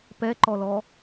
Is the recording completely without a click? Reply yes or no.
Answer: no